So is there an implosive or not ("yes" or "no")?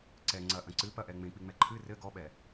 yes